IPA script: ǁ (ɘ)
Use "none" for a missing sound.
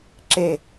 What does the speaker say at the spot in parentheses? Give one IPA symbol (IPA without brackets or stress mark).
e